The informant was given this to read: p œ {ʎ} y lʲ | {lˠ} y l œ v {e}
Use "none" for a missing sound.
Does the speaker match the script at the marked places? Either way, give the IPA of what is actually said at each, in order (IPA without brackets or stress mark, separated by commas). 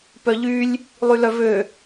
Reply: ʎ, lˠ, ø